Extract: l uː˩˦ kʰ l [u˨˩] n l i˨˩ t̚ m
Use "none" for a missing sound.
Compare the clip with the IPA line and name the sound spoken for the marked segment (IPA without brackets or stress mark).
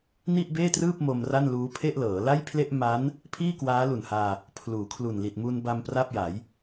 u˨˩